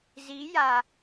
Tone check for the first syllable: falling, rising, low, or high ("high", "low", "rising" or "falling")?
rising